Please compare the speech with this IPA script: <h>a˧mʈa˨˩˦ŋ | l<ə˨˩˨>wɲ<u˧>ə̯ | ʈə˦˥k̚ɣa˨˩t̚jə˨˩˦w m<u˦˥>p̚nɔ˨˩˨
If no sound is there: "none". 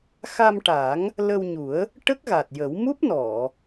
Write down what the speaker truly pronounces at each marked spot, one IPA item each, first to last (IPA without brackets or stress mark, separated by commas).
x, ə˧, u˨˩˦, u˦˥